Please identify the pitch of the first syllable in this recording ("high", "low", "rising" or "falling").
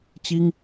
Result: high